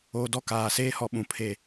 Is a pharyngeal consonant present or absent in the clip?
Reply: absent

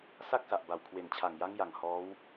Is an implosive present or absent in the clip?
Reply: absent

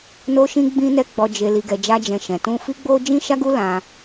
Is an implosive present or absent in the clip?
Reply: absent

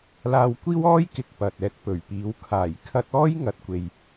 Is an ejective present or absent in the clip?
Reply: absent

